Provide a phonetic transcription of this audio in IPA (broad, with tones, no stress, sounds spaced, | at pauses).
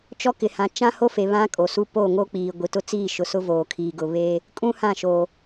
t͡ʃ ɔ˦ k ɪ˨ h ã˨ t͡ʃ ã˦ h o˦ f e˨ β ã˦ kʼ o˨ s u˦ p o˦˨ ŋ o˦ k͡p iː˨ ɡʷ i˨ t ʊ˦ t͡s iː˦˨ ʃ ʊ˨ s ʊ˦ v oː˨ kʰ iː˨ ɡ ʊ˨ β e˦ | kʼ ũ˦ h ã˦˨ ʃ o˨